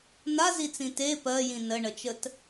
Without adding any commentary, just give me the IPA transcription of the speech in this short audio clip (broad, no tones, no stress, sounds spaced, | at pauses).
n a z i t͡s ĩ t e p ɜ j ĩ n ə ɳ ə t͡ʃ ə t